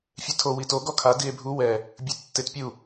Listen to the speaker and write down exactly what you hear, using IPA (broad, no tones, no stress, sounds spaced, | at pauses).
fʲ e tʰ o w i t o ɡ ɔ kʰ a d i e̯ bʱ u w ɛ | bʲ ɯ tː e t pʲ u